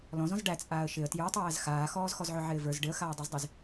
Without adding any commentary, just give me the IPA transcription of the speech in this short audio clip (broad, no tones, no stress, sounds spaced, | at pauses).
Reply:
l ɔ̃ z ɔ̃ z ɖ æ t͡sʼ aː ə̯ ʃ ɪ ə̯ t j ə˞ tˤ æː z x aː x ɔː z x ɔ z ʕ ʊ ʕ ɪː v ə˞ z ɖ ɪ ə̯ x aː dˤ ə˞ z dˤ i z